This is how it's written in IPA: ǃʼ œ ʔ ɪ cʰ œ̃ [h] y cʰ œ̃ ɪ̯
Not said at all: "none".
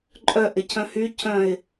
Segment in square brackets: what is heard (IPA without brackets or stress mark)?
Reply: h